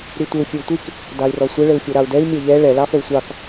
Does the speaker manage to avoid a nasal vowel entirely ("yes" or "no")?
yes